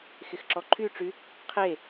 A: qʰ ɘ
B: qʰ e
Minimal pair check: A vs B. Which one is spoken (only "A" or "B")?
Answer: B